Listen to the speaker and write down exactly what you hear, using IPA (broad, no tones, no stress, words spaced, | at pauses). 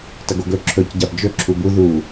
tɐɡoɡɵ ǁʰɵc ɟabd͡ʒɵ ǁʰubu ðu